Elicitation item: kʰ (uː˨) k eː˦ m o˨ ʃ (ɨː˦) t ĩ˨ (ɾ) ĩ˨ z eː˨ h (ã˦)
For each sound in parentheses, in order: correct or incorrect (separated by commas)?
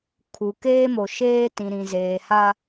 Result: incorrect, incorrect, correct, incorrect